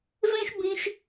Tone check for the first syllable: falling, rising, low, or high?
high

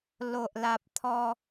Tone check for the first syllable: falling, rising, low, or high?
low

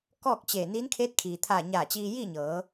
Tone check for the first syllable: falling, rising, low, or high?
falling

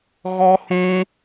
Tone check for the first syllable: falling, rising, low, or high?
high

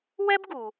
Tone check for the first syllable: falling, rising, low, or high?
high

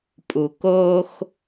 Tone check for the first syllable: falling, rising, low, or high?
low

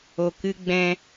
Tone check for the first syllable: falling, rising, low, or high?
low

